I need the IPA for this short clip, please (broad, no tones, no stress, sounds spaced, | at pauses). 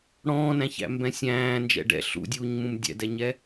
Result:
ɽ ɔ̃ː n æ̃ ç æ̰ m b ɛ̃ sʲ æ̃ː n d͡ʒ ɛ̰ ɖ ɛ̰ ɬ ṵ dʲ uː ɲ m ũ m dʲ ɛ̰ d ɛ ɲ ɛ